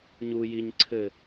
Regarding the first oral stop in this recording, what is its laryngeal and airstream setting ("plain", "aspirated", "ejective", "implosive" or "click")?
click